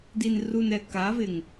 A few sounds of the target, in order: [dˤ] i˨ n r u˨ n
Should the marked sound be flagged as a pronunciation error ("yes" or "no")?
yes